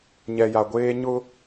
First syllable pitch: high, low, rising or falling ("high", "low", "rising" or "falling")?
low